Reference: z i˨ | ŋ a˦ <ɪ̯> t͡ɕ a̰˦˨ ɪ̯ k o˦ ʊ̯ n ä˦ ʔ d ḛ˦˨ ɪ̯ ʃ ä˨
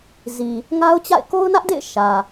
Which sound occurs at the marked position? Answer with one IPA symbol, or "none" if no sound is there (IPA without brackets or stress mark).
ʊ̯